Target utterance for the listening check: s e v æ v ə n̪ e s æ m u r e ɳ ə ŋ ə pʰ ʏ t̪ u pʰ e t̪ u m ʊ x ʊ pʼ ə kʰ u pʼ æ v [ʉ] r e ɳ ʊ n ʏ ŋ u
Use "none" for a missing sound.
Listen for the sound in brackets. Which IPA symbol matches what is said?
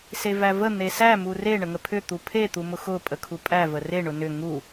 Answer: ə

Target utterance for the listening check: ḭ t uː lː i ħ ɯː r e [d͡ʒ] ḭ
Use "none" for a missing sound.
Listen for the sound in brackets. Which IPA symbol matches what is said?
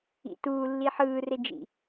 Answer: d͡ʒ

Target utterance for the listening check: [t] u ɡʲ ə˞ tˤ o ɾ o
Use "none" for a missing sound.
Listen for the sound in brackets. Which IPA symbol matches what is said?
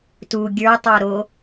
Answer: t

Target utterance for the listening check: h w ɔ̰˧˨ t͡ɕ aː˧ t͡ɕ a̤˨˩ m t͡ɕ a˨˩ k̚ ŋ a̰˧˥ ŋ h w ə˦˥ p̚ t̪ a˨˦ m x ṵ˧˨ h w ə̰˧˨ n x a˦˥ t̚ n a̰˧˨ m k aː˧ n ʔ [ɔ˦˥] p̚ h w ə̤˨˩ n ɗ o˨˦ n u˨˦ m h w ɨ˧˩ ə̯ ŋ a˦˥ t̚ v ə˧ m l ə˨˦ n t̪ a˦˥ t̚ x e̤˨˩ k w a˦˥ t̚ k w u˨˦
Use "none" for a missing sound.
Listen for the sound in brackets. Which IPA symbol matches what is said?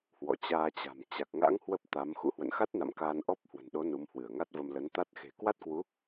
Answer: ɔ˦˥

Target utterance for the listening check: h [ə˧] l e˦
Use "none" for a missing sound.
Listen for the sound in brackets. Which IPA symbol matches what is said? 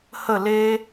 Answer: ə˥˧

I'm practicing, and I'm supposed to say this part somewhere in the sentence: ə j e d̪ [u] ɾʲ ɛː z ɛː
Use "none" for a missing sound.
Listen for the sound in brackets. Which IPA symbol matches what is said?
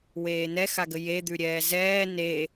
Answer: ʉ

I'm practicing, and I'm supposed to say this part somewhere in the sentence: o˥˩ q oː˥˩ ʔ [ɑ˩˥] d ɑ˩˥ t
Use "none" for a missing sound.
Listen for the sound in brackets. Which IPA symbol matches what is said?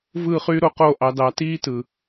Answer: ɑ˩˥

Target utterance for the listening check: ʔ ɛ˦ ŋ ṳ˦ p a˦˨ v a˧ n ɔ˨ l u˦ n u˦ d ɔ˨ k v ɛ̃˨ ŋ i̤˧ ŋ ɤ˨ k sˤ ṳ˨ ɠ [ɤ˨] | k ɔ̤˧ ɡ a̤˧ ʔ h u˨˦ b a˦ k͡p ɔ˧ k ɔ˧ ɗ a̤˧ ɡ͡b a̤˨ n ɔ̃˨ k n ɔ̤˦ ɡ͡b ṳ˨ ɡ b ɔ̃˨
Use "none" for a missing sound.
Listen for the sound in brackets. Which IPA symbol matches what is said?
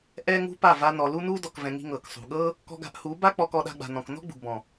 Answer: ɤ˦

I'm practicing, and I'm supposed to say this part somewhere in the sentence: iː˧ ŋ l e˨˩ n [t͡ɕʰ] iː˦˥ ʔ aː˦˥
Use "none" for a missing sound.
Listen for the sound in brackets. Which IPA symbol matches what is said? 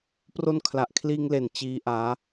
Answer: t͡ɕ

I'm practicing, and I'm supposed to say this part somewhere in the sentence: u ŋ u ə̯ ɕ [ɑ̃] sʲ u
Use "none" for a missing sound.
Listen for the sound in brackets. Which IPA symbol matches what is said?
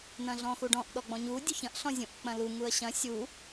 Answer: ɐ̃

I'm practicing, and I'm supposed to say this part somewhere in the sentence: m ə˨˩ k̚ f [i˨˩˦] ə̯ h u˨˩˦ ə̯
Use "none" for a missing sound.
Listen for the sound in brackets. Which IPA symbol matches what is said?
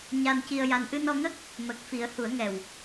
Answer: i˨˩˦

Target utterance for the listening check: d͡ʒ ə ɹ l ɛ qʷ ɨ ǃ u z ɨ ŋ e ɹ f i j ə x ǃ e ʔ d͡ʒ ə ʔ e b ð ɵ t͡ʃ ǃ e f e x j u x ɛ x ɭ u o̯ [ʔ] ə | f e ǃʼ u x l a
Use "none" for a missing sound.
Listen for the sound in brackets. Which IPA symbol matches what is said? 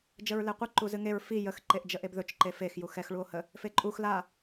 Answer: h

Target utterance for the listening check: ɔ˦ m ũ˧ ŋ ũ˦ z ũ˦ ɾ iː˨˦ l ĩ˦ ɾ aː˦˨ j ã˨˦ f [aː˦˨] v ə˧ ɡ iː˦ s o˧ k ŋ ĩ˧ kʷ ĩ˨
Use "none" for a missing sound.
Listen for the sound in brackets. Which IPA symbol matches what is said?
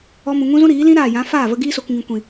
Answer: aː˦˨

